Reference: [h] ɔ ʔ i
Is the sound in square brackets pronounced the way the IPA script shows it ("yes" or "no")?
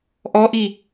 no